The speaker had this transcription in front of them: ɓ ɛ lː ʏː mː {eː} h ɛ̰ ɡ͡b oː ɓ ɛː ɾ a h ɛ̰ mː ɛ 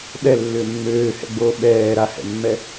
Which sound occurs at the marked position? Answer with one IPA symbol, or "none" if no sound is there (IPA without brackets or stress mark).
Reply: øː